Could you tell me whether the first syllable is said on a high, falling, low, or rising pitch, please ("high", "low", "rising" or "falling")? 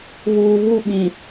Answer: low